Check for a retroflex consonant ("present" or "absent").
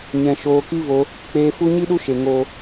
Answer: absent